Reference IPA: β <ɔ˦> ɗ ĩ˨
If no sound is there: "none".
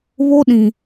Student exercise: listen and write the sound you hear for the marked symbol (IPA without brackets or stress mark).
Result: o˦